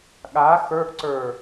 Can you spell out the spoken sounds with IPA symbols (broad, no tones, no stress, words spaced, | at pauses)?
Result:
ɠa xə˞ʔǀə˞